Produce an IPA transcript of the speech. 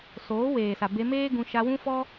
s oː˨˦ w eː˨ s a˨ b e˧ m eː˦ ɡ ũ˧ ʃ a˧ w ũ˦ f ɔ˦

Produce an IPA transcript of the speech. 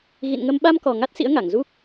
ɣ ḭ˧˨ n ŋ ə˧ m ɓ a˧ m k ɔ˨˩ ŋ a˦˥ t̚ s ḭ˧˥ ə̯ ŋ a˧˩ ŋ z u˦˥ k̚

